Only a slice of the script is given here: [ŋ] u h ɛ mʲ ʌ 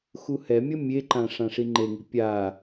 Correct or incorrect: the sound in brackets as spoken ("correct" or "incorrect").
incorrect